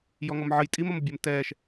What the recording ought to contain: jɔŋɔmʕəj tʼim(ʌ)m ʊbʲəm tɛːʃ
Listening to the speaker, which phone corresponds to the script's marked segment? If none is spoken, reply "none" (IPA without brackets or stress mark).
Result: ʌ